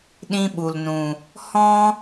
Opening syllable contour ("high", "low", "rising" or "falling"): high